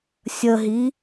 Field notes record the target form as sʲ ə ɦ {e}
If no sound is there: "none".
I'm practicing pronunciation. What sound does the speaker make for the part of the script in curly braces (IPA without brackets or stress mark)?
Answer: i